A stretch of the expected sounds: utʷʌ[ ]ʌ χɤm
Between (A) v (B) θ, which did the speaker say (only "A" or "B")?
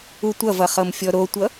A